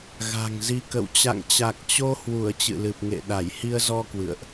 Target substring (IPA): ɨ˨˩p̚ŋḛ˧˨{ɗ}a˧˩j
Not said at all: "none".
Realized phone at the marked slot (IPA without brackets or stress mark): ɗ